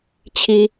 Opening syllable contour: high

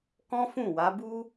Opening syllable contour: high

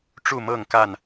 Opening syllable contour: falling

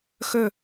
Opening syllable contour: falling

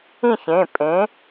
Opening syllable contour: falling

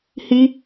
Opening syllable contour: high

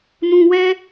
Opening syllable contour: low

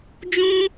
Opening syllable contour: high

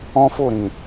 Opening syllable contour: high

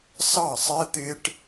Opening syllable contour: falling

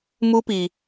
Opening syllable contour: high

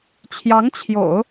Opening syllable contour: rising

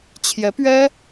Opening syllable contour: rising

